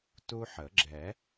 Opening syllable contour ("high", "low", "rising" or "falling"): high